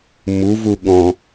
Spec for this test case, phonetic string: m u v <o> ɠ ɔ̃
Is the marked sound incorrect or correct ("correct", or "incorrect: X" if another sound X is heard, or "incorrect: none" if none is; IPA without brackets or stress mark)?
incorrect: u